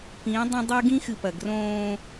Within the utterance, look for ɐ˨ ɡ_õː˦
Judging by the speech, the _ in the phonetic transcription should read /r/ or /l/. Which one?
r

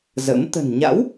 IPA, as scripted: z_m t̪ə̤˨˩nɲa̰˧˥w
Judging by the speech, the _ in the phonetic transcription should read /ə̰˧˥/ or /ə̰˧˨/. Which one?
ə̰˧˥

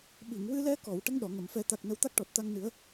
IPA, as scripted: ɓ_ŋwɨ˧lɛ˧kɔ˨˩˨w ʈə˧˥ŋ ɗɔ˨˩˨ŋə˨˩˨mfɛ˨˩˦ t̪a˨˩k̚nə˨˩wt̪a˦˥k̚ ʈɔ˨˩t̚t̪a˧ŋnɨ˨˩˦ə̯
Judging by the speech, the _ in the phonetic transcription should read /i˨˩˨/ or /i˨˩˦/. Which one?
i˨˩˨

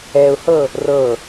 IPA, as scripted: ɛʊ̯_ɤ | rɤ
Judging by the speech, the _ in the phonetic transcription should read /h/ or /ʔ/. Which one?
h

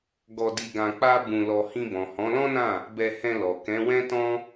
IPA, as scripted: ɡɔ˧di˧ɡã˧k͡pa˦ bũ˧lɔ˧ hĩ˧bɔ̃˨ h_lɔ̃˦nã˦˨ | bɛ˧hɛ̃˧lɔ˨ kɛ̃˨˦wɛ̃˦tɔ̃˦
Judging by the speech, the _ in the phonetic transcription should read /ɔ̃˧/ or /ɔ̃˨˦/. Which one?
ɔ̃˨˦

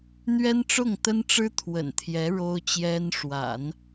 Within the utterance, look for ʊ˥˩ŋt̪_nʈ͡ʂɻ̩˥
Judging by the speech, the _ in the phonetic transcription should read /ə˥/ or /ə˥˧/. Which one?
ə˥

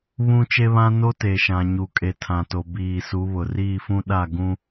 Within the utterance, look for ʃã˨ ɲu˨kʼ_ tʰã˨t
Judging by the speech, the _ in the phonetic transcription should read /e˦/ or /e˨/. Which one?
e˨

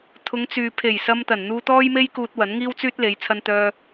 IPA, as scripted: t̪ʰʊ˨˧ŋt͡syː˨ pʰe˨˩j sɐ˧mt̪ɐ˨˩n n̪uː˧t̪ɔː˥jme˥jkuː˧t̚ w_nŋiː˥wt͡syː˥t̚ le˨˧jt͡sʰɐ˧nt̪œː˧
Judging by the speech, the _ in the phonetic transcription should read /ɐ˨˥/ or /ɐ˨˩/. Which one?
ɐ˨˥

